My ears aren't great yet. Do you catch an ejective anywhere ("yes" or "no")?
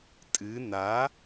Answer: yes